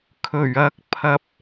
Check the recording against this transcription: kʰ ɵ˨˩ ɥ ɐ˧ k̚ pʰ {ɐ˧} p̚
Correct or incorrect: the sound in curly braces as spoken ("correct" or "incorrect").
correct